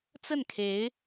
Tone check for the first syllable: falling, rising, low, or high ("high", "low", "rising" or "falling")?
falling